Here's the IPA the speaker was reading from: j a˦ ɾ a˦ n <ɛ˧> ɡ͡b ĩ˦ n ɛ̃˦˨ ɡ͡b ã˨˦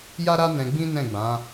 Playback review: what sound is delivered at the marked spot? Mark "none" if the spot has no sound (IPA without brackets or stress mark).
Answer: ɛ̃˧